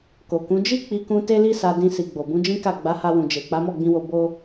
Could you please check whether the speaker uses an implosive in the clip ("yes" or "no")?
no